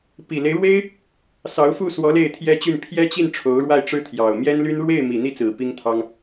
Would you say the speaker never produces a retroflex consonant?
no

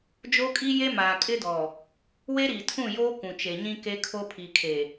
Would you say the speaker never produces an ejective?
no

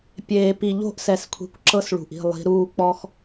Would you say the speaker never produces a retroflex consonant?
no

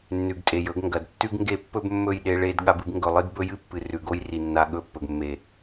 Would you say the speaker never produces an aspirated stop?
yes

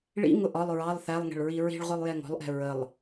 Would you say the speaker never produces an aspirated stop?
yes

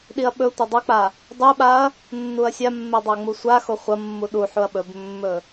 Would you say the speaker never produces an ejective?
yes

